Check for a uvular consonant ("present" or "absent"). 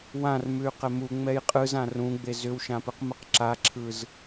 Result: present